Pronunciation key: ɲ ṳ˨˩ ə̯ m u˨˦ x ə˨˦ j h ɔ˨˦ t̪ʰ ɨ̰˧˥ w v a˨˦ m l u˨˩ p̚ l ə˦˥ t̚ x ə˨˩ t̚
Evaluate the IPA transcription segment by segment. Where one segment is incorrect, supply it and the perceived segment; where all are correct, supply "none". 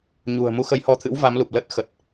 none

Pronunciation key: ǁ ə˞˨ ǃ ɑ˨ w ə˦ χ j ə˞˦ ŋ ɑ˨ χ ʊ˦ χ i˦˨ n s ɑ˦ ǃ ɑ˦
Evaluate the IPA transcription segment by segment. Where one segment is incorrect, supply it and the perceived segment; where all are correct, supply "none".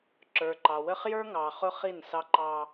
none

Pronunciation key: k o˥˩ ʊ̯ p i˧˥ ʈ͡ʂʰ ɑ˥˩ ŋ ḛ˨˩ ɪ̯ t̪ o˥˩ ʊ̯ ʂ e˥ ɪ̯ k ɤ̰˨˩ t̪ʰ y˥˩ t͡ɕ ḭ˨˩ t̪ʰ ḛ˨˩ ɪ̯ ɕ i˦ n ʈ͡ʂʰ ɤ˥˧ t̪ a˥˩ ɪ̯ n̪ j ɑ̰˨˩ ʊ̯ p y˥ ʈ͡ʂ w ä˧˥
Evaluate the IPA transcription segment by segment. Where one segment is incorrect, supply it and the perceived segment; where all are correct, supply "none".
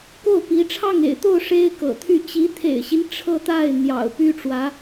ḭ˨˩ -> i˧˥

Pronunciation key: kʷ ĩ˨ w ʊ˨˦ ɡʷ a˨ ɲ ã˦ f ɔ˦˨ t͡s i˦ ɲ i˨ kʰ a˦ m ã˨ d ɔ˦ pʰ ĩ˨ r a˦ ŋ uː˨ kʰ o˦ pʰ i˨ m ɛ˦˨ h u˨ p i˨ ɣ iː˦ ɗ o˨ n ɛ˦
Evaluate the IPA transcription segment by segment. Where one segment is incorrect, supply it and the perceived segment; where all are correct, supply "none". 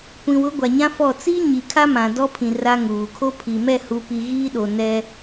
none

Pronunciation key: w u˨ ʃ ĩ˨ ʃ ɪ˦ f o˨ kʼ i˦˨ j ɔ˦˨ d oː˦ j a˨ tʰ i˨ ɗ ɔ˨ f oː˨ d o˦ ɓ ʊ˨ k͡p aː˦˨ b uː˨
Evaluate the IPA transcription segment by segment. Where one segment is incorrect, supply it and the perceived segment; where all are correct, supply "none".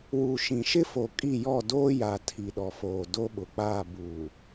none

